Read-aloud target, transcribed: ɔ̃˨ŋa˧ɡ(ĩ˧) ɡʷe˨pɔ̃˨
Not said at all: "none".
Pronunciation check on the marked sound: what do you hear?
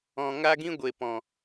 ĩ˧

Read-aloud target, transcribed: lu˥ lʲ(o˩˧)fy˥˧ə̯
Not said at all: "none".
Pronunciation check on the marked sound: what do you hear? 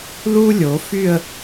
o˩˧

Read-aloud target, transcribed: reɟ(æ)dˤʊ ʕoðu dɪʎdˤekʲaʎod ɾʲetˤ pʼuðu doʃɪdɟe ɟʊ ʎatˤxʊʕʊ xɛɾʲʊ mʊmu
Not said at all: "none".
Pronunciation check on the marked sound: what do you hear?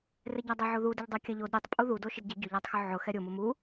a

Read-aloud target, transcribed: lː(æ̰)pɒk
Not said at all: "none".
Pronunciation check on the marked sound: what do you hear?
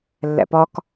æ̰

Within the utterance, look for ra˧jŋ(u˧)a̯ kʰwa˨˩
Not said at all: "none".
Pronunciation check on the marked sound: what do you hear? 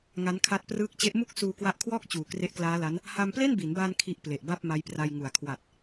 u˨˩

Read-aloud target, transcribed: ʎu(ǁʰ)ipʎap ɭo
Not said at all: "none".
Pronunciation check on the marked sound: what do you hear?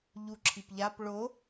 ǁʰ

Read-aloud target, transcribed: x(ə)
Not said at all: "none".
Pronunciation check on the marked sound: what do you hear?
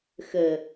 ə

